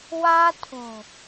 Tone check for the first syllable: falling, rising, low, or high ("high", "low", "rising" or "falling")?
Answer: high